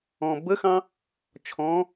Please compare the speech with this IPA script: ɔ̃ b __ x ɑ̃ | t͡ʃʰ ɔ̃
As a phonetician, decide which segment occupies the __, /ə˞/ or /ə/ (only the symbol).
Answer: ə